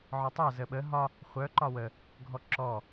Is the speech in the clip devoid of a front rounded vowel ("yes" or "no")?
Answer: no